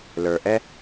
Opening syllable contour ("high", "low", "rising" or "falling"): low